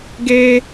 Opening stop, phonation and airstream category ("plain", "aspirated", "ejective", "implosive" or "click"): plain